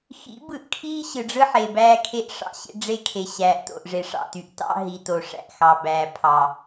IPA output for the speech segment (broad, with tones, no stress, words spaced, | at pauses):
xḭ˨˦bɯ˨ʔkʰiː˦ ɕɯ˨ɖ͡ʐɯ˦ ħe˨bæː˦kʰe˦ʔ ʂɑ̰˦ɕḛ˦ɖ͡ʐe˦kʰe˨ ɕæː˨ʔto̰˨ʔ ʐe˨ʂɑ̰˦˨ ty˨ʔtɑ̰˦ ɦi˨to˨ ʂæ̰˨ʔxɑ˨ bæː˨pʰɑ˨